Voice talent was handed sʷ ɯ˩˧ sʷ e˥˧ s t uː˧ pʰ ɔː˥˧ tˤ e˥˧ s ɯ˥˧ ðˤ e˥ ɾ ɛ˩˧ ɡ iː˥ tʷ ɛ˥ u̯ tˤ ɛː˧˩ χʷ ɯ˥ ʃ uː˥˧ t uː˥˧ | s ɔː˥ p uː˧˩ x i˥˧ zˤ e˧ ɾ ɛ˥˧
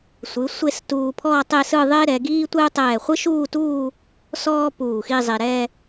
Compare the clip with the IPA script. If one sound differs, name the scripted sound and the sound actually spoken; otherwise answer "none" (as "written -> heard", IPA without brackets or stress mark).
none